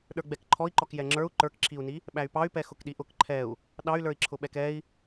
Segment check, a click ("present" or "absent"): present